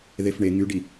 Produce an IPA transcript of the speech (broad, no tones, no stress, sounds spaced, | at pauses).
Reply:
ð e f ɳ e ŋ y ɖ i